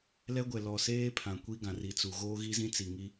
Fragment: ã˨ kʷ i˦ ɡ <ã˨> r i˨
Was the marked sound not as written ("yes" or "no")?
no